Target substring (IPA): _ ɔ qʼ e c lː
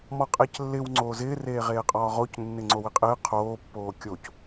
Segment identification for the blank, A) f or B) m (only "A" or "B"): B